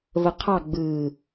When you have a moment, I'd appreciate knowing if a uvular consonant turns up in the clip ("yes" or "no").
yes